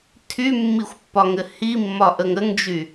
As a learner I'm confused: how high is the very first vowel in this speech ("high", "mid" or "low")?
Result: high